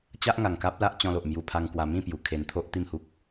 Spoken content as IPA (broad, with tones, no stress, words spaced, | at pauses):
t͡ɕa˦ʔŋa˨˩ŋka˦p̚la˦ʔ t͡ɕɔ̃˧lo˨ʔ mju˧pʰa˧ŋkwa˧ mĩ˥˧pju˨˩ kʰe˧nt̪ʰo˦ʔ t̪i˥˧mhu˦k̚